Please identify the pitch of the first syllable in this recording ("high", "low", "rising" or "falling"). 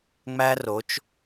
high